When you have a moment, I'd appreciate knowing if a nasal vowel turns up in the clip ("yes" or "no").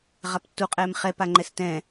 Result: yes